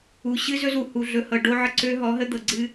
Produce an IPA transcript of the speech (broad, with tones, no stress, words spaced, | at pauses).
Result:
u˨ɕɨ˦ zɵ˦zu˨ hu˨ɮɵ˨hɤ˨ ɖo˦ʕə˦ ǀø˦ ɦɔ˨˦ɦə˦ d̪ɤ˨ɡ͡ǀɨ˦